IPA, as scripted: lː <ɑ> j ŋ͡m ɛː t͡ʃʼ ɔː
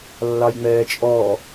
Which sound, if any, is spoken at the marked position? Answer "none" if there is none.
ɑ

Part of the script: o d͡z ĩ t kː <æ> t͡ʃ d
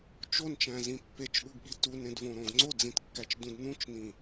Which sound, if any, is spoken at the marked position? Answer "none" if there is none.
æ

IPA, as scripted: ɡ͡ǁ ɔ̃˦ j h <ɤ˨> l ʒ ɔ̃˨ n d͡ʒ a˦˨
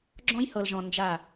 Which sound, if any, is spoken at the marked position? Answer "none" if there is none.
ɤ˨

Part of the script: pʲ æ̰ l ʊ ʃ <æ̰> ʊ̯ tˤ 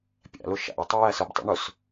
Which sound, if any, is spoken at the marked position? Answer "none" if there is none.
æ̰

